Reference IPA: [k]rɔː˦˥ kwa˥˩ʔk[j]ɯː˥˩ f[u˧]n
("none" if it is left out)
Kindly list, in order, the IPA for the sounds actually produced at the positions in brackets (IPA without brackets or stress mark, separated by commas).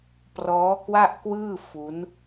p, w, u˦˥